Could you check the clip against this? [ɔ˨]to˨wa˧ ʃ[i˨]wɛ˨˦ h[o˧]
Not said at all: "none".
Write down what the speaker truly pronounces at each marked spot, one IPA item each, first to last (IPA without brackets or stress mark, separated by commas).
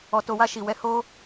ɔ˨, i˨, o˦